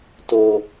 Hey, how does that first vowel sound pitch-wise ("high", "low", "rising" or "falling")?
low